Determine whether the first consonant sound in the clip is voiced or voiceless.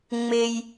voiced